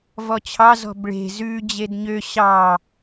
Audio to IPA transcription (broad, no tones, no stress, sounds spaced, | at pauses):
v ɔ t͡ɕʰ ɑ z ɔ̤ b ɭ e̤ z ʉ d͡ʑ e d ɲ ø ɕ ɑ